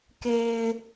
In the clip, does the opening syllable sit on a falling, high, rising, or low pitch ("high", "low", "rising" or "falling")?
low